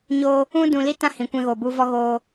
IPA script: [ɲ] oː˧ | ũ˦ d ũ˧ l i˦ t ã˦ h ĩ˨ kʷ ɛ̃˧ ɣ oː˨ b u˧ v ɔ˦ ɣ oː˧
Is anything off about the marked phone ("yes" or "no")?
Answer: no